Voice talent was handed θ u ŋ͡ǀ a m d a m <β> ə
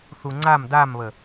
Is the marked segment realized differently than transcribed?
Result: no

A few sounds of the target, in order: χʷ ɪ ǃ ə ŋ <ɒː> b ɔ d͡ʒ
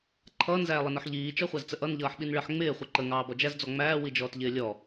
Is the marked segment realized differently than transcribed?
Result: yes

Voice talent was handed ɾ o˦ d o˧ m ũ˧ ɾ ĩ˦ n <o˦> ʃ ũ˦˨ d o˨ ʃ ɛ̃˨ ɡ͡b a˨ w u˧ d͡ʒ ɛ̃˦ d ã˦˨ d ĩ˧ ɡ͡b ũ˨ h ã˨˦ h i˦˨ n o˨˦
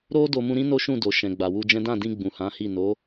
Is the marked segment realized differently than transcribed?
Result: no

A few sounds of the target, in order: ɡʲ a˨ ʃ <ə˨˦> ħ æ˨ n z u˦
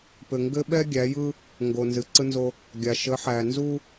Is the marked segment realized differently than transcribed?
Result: no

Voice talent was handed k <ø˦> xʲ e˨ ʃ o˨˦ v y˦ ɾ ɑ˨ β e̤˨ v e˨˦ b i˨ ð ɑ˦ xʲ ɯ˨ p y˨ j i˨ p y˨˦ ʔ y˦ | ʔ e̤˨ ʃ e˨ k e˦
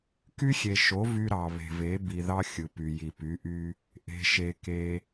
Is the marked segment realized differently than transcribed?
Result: yes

